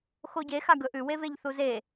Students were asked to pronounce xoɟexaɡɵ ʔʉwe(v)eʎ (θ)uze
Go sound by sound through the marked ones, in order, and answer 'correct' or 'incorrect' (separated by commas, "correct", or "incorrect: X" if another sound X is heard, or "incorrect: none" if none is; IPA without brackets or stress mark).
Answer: correct, correct